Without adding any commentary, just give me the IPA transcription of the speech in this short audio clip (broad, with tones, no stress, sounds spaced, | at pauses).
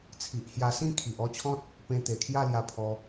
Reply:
t͡sʰ i˨ ʔ h j a˧ s ĩ˥˧ kʰ i˨ ʔ ɔ˦ t͡ɕʰ ɔ̃˦ t̚ | p ẽ˧ t̪ e˨˩ kʰ j a˥˧ l j a˧ pʰ ɔ˧